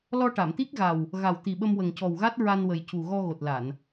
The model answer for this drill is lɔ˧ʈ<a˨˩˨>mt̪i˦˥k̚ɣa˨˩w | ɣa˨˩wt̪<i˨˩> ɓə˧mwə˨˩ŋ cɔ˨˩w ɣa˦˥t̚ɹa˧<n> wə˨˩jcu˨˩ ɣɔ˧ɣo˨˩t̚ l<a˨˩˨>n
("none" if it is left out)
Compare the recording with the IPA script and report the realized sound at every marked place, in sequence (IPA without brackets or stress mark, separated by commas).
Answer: a˨˩˨, i˨˩, n, a˨˩˨